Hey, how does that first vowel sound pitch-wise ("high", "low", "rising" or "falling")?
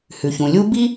low